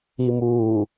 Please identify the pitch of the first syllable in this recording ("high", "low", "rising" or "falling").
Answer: low